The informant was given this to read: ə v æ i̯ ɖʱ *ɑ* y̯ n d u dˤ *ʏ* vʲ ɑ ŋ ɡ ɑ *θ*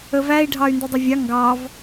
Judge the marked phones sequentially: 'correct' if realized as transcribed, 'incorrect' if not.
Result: correct, correct, incorrect: v

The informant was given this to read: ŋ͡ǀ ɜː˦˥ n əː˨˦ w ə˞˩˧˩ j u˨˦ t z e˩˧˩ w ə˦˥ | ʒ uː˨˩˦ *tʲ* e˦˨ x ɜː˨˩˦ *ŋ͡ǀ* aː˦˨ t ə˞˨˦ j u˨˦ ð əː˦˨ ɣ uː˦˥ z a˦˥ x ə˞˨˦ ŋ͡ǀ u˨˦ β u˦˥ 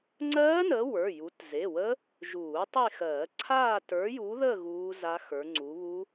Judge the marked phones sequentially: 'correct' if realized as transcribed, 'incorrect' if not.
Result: incorrect: tˤ, incorrect: ǀʰ

